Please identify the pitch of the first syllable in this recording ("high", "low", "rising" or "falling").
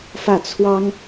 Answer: falling